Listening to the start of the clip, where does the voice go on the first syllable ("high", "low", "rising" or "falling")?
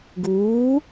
rising